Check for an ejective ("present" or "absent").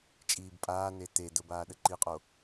present